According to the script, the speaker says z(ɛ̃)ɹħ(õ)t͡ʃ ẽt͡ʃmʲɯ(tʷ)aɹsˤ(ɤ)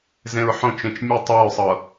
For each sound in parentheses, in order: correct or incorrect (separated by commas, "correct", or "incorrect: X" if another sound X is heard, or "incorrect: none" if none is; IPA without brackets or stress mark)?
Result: incorrect: ẽ, correct, incorrect: tˤ, correct